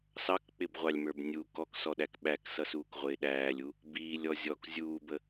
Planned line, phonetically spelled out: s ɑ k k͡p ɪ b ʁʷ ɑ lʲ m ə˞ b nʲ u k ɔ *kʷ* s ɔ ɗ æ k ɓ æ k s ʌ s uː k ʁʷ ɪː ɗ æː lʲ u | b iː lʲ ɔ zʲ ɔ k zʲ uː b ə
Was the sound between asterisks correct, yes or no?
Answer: no